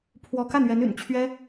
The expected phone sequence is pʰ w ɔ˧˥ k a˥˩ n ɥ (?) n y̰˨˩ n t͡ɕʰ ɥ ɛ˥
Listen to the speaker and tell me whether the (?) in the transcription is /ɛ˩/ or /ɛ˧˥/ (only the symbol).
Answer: ɛ˧˥